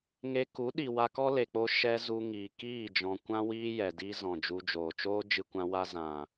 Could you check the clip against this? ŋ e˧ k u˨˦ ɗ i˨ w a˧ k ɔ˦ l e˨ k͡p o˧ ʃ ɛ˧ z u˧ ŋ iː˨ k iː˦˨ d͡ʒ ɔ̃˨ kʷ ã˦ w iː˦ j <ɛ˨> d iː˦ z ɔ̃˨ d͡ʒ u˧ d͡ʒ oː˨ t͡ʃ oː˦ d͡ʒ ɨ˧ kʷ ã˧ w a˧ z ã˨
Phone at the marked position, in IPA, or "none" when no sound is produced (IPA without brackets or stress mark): ɛ˨